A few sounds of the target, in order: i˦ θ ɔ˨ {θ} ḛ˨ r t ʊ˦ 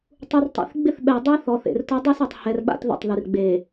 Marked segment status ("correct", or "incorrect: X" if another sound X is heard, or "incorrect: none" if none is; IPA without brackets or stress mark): correct